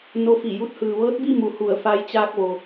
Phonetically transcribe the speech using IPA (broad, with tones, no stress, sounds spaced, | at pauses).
n o˧˥ f i˧˩ j u˧˥ t̚ h ɯː˩ ʋ ɤː˧˥ t̚ b i˥˨ m u˩˧ h u˧˩ ə̯ f a˧ j t͡ɕ aː˧ k̚ ʋ o˩